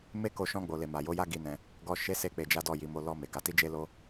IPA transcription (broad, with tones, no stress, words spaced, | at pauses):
me˦ko˧ʃɔ̃˧ɡ͡bo˨ le˨ma˨jo˧ja˦ ɡi˧nɛ̃˧ | ɡɔ˦ ʃe˧se˧ k͡pe˧d͡ʒa˦dɔ˦˨ji˨˦ mo˧ lɔ˧ me˨ ɡa˨˦ti˦ d͡ʒe˦lo˦